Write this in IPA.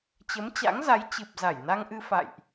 t͡ɕ ə˨˦ m t͡ɕ a̰˧˥ ŋ z a˨˦ j t͡ɕ ɨ˨˩ p̚ z a˧˩ j n a˧ ŋ ʔ ɨ˧ f a̰˧˨ j ʔ

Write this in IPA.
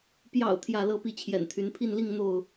p j ɑ̰˨˩ ʊ̯ t̪ʰ j ä˥˨ l ɤ˥˨ p i˥˨ t͡ɕʰ j ɛ̰˨˩ n t̪ʰ y˨˦ n pʰ i˥˨ n l i˥˨ ŋ n̪ o˥˨ ʊ̯

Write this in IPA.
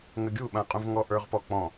ŋ ɘ ɡʲ u ɓ ã qʼ ũ v ŋ ɔ ʔ ə˞ ʁ p ɔ k͡p ɔ̃

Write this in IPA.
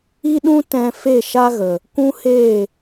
i˦ ɗ ũ˦ t ɛ̃˧ f e˦˨ ʃ a˦ ɣ ə˨ | kʷ ũ˦ h eː˦˨

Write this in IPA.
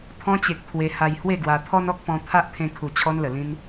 t̪ʰ ɔ̃˧ t͡ɕ e˨ k̚ pʰ w e˧ h a˧ j h w e˥˧ ɡ w a˧ t̪ʰ ɔ˦ n ɔ˦ k̚ p ɔ̃˧ t̪ʰ a˦ ʔ t̪ʰ ẽ˧ kʰ u˨˩ t͡ɕʰ ɔ˧ n l ə˨˩ l ĩ˧ n

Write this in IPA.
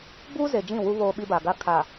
b uː˦ z e˨ d͡ʒ ĩ˦˨ w u˦ β oː˦ ɓ i˦ b a˨ ɡ a˦ kʰ aː˨

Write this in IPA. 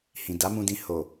h ĩ˨ d a˨˦ m ũ˧ d ĩ˧ h o˨

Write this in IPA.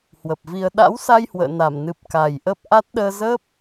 h w ə˨˩ p̚ v i˧ ə̯ ɗ a̰˧˥ w s a˧ j h w ə̰ː˧˨ n a˧˩ m n ɨ˨˩ p̚ k a˨˩ j ʔ ə˦˥ p̚ ʔ a˦˥ t̚ ɗ əː˧ z ə˦˥ p̚

